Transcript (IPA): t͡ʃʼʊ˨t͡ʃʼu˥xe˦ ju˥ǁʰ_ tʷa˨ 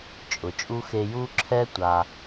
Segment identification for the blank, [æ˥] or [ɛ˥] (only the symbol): ɛ˥